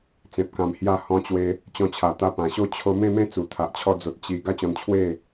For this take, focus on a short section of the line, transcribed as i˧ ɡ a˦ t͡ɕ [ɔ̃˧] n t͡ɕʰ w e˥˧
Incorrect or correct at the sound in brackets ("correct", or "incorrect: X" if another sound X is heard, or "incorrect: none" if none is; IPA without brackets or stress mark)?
correct